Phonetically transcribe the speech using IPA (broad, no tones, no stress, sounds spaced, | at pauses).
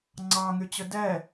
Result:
ŋ͡ǀ ɑ ŋ y t͡ɕ ɵ d ɛ